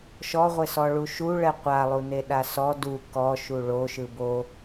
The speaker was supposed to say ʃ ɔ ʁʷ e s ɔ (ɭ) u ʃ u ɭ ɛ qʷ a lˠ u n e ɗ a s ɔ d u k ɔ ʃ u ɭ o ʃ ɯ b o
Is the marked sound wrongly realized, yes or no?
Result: no